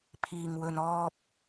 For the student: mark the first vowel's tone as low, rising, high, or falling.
low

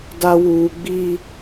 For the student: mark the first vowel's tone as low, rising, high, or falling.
high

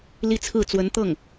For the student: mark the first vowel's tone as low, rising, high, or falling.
falling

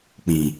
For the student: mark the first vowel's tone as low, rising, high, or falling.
low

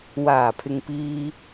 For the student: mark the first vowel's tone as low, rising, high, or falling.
low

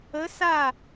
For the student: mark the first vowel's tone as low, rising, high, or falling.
rising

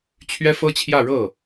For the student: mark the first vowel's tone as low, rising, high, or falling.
high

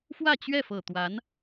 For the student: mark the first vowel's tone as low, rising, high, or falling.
falling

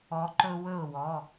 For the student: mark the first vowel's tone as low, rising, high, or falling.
rising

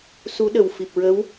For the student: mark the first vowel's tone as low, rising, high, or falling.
rising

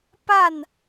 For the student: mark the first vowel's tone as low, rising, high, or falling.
falling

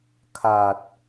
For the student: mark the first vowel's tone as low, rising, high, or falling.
low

